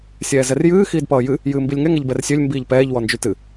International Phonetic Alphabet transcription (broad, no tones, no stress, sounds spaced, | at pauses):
sʲ ɛː z ɛ r j ɨː x iː d p ʌː j ɨ | j ɨː m b i lʲ ŋ ɛ ŋ ɛ ʎ b ɛ r sʲ ø lʲ m b iː ʎ p ɛː ʎ w ɔ n d͡ʒ y t ɨ